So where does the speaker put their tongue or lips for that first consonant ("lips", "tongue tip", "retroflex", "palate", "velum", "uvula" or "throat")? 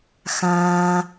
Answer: velum